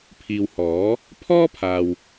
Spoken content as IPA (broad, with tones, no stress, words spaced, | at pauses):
pʰiː˨whɔː˨˥ | pʰɔː˥pʰaː˨w